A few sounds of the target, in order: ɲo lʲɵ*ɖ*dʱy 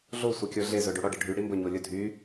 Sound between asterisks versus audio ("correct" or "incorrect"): incorrect